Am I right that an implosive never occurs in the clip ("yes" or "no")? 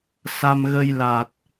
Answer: yes